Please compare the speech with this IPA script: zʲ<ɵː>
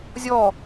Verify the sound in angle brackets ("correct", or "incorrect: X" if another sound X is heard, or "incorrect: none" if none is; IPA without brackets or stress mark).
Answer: incorrect: ɔː